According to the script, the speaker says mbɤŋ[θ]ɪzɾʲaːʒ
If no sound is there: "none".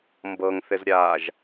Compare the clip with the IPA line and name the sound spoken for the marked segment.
θ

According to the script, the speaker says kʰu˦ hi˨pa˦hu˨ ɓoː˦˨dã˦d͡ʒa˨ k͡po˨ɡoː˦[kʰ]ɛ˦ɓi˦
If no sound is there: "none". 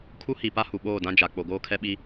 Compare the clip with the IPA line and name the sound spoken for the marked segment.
kʰ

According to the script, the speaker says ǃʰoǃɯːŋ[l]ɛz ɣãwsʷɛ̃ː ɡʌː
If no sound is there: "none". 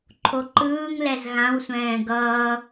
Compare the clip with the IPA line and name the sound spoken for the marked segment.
l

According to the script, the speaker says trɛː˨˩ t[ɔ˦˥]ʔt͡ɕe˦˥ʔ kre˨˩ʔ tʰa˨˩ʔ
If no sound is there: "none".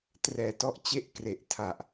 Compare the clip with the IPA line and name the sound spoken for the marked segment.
ɔ˦˥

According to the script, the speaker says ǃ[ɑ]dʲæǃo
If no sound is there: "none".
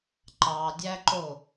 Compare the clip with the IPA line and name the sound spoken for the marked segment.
ɑ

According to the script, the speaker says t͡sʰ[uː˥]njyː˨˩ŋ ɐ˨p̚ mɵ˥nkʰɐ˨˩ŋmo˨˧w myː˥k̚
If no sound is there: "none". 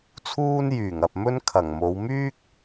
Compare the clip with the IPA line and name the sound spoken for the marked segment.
uː˥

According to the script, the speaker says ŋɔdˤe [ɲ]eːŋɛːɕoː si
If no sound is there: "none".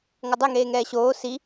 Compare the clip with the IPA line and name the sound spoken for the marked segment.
ŋ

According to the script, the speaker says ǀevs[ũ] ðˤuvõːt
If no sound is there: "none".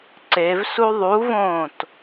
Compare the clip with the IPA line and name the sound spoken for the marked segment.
u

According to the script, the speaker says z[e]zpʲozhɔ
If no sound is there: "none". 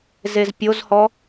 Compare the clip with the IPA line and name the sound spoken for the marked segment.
e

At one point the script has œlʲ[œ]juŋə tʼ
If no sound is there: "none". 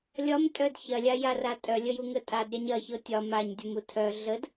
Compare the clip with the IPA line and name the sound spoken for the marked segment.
ə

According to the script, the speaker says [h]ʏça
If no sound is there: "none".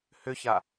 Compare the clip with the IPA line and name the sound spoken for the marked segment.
h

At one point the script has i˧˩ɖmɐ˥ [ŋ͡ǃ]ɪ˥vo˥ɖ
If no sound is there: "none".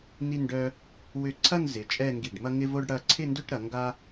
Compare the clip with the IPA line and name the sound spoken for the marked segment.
ŋ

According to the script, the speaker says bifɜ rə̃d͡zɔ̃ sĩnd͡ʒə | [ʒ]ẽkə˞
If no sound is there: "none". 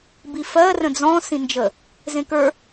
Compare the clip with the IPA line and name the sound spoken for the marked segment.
z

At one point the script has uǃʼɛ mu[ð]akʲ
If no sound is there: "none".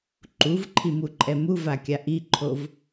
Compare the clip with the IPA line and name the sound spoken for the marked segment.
v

